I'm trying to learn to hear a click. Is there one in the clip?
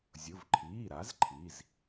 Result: yes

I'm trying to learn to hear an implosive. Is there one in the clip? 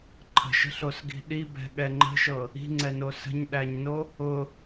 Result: yes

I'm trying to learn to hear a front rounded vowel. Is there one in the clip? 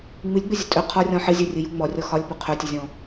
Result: no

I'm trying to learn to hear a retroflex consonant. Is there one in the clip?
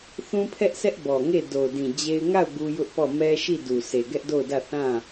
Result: no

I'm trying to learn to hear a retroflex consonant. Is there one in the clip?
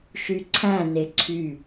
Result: no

